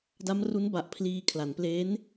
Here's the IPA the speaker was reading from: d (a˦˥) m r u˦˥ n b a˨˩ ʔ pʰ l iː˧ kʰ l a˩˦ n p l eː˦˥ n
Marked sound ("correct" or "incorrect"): correct